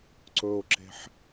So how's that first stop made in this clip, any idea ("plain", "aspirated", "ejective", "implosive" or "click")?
click